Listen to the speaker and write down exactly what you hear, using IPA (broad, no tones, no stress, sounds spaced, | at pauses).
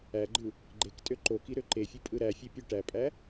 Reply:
æ ɡ͡ǃ ɯ | ɡ͡ǃ e k tʼ ø ǃ o k i ɾ ø ǃ e fʲ ɯ pʼ ɯ ɾ æ fʲ e pʲ ø ʈ æ pʼ æ